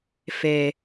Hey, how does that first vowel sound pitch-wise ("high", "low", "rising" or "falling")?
low